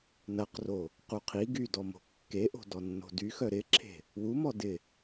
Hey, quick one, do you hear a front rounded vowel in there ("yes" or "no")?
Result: yes